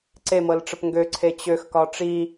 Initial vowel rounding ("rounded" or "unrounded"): unrounded